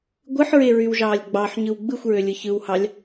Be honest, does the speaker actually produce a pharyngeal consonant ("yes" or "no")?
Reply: yes